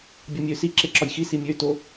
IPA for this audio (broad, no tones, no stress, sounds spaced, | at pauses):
bʲ ɒ mʲ ø s i ǁ e ǁ ɒ j x i s i mʲ ø t o